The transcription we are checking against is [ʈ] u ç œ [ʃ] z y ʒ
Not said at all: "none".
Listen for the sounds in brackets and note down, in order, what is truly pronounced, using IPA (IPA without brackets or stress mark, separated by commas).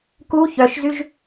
k, ʃ